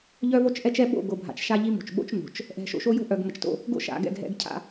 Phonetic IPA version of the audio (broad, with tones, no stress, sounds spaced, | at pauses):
ʎ œ˦ v o˦ t͡ʃ ʔ ɛ˦ t͡ʃ ɛ˦ ɓ o̰˦˨ ɡ o˨ bʱ a̰˨ t͡ʃ ʃ a˦ ʎ i˦ m o̤˨ t͡ʃ ɓ o̰˦ t͡ʃ n o̤˨ t͡ʃ | ʔ ɛ̤˨ ʃ o̰˨ ʃ o˦ j o̤˦ ʔ œ˨ ɡ m ə˨ t͡ʃ t o̰˦ | ɡ o̰˦ ʃ a̰˨ ɡ ɛ̰˦˨ ɡ ɦ ɛ̰˦ ɡ cʰ a̰˦